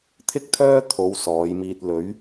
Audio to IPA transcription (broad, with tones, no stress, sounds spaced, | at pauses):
t̪ʰ ɪ˥ k̚ t̪ʰ œː˥ t̪ʰ o˨˧ w s ɔː˨˧ j m iː˧ t̚ l ɵ˨˧ ɥ